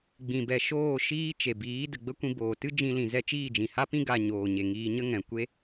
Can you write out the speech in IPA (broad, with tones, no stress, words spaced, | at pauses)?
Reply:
ɡ͡bĩ˨bɛ˨ʃoː˦˨ ʃiː˦t͡ʃe˨biː˨˦ də˨ɡ͡bə˦kʷĩ˧ boː˨tɨ˦ d͡ʒĩ˧lĩ˨zɛ˦˨ t͡ʃiː˦˨d͡ʒĩ˨ha˦pĩ˦ ɡa˧ ɲoː˨ɲe˨ŋiː˧ɲə˦ ŋɛ̃˨ kʷe˦